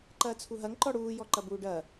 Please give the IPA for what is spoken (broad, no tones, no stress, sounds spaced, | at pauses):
ǃ ɐː t͡sʰ u ɦ ɐ ŋ ǃ ɔ ɽ uː j ɔ ǃ ɐ b uː ɖ ɐ